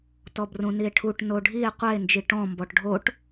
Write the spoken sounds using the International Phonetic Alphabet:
tɔbrũnie̯ʈʰuʈ noɖʱie̯ qʷɛe̯nd͡ʒi ʈɔ̃ mbɔʈɖʱoʈ

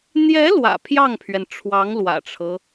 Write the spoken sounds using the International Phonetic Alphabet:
n̪jɛ˧˥ lwä̰˨˩pʰjɑ˥˩ŋpʰɥɛ˩n ʈ͡ʂʰwɑ˧˥ŋlwä̰˨˩ʈ͡ʂʰɤ˦

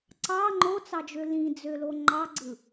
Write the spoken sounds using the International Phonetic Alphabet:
ǀɑ ŋ͡ǃot͡sɑd͡ʒø lĩd͡zølo ŋ͡ǃɑɡ͡ǀɯ

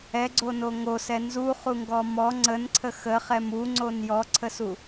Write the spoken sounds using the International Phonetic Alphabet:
ɛɡ͡ǀono ŋosɛ nzuχuŋɡɔ mɔ ŋ͡ǀənǀʰə xəχɛm uŋ͡ǀon jɔǀʰəsu

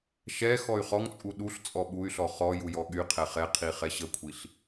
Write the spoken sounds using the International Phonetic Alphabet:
ʃɛ xɔy̯χɔŋt͡sʼu ɗuɬ t͡sʼɔɓuy̯ɬɔ χɔ jujɔɠyqʰɛ χɛqʰi χɛɕəkʷʰiɬ

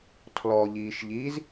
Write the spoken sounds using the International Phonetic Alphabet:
tʰlɔʎiːʃʎiːz

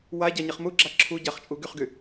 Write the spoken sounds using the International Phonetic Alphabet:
wa ɟaɲɛχmuɡ͡ǁa ǁʰuɟaχ t͡ʃʼuɡyχɡy

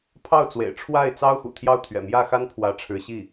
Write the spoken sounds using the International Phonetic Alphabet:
pʰɑ˥˩ʊ̯t͡swḛ˨˩ɪ̯ ʈ͡ʂʰwa˥˩ɪ̯ t͡sɑ˥ʊ̯ xṵ˨˩t̪ʰjɑ˥˩ʊ̯t̪ʰɥɛ̰˨˩ mjä˥˩xa˥n pʰwä˧˥ ʈ͡ʂʰɻ̩˧˥ɕi˥˩

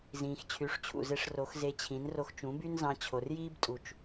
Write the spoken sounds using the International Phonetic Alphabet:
zĩː˨x t͡ɕʰy˨˦ʂt͡ɕʰṵ˨ze˧ʂ ro˨˦xze˧t͡ɕʰĩ˨˦n ro˧xt͡ʃũ˨˦by˦nzɑ̃˧ t͡ɕʰo˨rjiː˦btʼu˨t͡ʃ

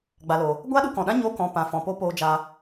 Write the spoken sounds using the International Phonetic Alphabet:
ɡ͡ba˨lo˨ | ɡʷaː˦ɗu˧kɔ̃˨ɗã˦ ɲo˧kɔ̃˨pã˨ fɔ̃˨po˦ poː˦d͡ʒa˦

